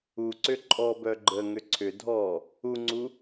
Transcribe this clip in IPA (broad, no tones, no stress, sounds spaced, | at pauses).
u ǀ ʏ ǃʼ ɔ b œ ɡ͡ǃ ə ŋ ʏ ǀʰ ʏ dʱ ɔ | u ŋ͡ǀ u